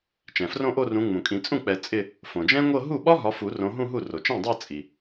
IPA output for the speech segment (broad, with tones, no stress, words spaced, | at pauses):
t͡ʃɛ̃˩frõ˥˧ʔo˥˧rũ˨˦ ŋ͡mũ˩kʼĩ˨˩˦ t͡sʼũ˥˩k͡pɛ˨˩˦ t͡sʼɪ˥˧ | fõ˩d͡ʒɛ̃˥ŋʷɤ˥˧ ɦu˥˩ɓɒ˥ ɦɒ˨˦fu˨˩˦ rõ˨˦ɦũ˥˧ɦu˥˩ ro˩t͡ʃɛ̃˥˩dˤa˥˧ t͡sʼi˩